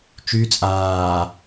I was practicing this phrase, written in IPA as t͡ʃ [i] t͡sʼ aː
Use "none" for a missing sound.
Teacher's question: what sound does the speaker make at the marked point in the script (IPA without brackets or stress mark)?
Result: y